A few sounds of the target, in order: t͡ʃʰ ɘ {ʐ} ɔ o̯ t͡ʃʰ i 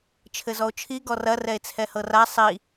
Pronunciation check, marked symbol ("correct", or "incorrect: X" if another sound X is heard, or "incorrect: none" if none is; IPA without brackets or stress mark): incorrect: z